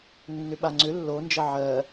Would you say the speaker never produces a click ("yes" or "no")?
no